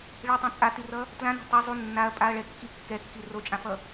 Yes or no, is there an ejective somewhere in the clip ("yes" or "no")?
yes